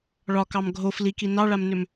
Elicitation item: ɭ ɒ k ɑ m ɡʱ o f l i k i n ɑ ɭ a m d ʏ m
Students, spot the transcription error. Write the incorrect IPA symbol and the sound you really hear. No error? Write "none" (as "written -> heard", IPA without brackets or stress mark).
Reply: d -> n